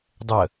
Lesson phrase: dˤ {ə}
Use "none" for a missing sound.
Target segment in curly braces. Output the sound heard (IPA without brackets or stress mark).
ə